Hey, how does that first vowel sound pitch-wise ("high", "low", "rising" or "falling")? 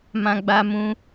high